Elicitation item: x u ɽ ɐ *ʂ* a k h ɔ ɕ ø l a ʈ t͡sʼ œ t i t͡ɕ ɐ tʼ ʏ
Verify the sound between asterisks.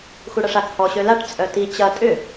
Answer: correct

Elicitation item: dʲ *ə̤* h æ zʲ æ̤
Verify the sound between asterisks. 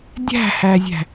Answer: incorrect: æ̤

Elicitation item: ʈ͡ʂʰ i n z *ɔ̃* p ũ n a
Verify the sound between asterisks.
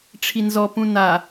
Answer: incorrect: ɔ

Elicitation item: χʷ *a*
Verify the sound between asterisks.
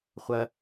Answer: incorrect: ɐ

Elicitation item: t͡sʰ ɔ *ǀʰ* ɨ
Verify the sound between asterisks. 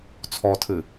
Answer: incorrect: tʰ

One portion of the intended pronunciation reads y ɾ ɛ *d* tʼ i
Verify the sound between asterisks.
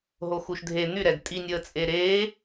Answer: correct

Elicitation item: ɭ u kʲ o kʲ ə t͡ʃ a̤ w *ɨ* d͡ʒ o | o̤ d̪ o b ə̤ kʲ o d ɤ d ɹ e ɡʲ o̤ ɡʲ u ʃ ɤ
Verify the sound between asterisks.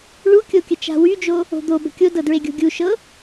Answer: incorrect: y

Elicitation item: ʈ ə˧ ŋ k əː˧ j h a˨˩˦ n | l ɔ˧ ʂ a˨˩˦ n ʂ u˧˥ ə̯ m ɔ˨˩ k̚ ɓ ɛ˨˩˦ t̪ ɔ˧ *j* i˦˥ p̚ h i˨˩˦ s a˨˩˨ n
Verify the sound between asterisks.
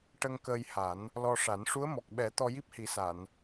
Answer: correct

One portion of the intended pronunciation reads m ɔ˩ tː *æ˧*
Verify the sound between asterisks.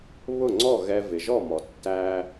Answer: correct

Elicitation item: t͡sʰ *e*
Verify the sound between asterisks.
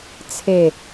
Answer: correct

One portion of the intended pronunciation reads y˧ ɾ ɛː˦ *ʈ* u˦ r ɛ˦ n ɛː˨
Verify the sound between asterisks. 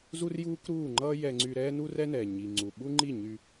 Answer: incorrect: n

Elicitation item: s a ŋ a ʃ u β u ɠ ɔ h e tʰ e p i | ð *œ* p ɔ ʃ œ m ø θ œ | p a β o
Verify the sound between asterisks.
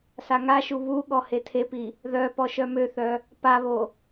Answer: correct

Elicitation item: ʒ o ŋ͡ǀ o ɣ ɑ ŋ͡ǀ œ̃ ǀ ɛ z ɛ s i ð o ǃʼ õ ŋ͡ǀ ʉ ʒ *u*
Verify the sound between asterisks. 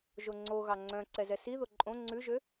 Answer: incorrect: ø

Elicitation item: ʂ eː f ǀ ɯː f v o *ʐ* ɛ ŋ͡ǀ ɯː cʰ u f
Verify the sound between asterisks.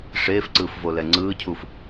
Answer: incorrect: l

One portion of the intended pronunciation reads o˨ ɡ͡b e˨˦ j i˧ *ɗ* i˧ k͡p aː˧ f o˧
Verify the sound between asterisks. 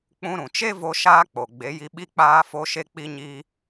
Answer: incorrect: ɓ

